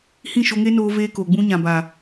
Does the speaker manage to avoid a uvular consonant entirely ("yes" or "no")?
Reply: yes